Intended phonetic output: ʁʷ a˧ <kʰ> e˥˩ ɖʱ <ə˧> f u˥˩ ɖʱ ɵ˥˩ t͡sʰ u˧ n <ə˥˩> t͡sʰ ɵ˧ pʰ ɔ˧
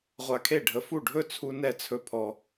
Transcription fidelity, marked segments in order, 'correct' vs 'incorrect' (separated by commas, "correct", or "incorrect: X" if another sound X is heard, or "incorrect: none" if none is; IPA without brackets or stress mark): correct, correct, incorrect: ɛ˥˩